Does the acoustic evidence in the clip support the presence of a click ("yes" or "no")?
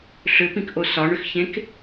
no